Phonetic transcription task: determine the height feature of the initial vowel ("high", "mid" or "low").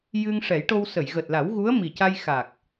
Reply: high